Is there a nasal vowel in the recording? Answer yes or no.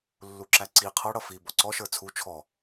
no